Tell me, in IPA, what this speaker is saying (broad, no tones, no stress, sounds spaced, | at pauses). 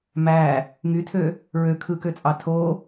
m æ | ŋ y tʰ ø | ɹ ø kʰ ɯ k ø t͡sʼ ɑ tʰ o